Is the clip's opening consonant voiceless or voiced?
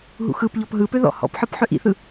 voiced